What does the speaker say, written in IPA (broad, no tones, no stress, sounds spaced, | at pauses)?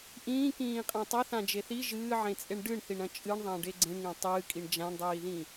ʔ ĩː k ĩː qʼ ã tˤ ɐ θ ã d͡ʒ e θ i ʒ ɨː ʕ ẽ t͡sʼ e ɳ ɖ ɨ ɳ θ i ɳ ɐ̃ t͡ʃʼ ɨ ɳ ðˤ ã ɖ e ɡ͡ǀ ẽ ɳ ŋ ẽ tˤ ɨː kʼ i ɳ d͡ʒ ã ɳ dˤ iː ð ĩ